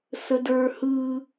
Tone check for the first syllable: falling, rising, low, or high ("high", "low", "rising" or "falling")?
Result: high